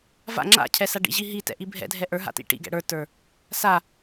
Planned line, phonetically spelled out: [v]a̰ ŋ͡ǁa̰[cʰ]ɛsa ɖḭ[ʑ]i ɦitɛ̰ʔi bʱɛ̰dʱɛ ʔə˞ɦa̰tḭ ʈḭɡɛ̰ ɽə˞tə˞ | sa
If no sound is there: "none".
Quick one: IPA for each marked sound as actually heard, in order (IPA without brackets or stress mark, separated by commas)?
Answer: v, cʰ, ʑ